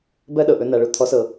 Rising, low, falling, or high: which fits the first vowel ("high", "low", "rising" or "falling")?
high